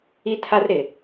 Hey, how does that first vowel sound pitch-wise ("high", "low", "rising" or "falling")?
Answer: high